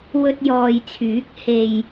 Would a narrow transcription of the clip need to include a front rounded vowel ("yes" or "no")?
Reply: yes